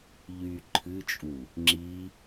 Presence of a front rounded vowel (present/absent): present